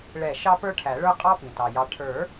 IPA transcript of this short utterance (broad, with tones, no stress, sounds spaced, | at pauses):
ɭ ɛ˧˩ ʃ ɑ˥ p ə˞˥ ʈʰ æ˨˩˦ ɭ ə˞˥ qʼ ɑ˥ p ĩ˩ t ɑ˩ j ɑ˨˦ ʈʰ ə˞˨˩˦